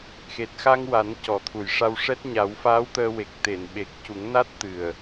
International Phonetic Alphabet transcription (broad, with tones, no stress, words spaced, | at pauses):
xe˨˩t̚xa˧ŋwa˨˩˦n cɔ˨˩˦t̪ʰu˨˩jʂa˧wʂɛ˦˥t̚ ɲa˨˩˦wfaː˧˥w t̪əː˧we˨˩k̚ t̪e˨˩˨nɓe˨˩k̚cu˨˩˦ŋna˦˥t̚ t̪ɨ˨˩ə̯